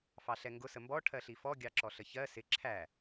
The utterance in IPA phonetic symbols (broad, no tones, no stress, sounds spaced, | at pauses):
f ɑ ɬ ɛ ŋ ɡ ʊ s ə m b ɔ ʈʰ ɜ ɬ i f ɔ ɡʲ ɑ ǁ ɔ ɬ ə ç ɜ s ɪ ǁʰ æ